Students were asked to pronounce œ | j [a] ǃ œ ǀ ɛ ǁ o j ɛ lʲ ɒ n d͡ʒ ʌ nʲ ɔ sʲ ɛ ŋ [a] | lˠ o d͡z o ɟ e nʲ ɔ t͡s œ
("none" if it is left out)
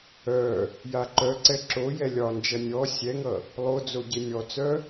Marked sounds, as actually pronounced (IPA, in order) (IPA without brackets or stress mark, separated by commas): a, ʌ